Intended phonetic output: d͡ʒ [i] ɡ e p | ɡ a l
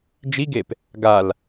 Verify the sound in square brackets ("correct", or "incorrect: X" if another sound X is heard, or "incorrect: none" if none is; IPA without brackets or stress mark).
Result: correct